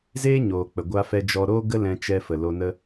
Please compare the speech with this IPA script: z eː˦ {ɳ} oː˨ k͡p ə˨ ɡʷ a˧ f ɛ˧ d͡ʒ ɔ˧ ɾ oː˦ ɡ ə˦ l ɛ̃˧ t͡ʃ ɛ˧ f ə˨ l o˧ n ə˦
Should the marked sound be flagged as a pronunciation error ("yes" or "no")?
yes